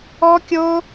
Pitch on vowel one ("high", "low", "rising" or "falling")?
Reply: high